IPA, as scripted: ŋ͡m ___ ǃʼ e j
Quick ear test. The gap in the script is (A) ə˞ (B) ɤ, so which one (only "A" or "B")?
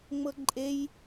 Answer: B